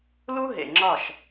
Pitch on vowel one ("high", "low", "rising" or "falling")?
high